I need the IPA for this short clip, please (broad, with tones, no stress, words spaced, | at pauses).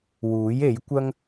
wuː˨˥je˨˥jkʷɐ˥ŋ